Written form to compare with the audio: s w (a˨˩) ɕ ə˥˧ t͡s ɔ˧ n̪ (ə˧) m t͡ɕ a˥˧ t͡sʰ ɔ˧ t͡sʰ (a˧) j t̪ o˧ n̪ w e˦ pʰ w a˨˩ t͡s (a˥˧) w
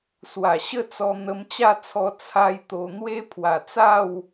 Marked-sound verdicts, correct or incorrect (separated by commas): correct, correct, correct, correct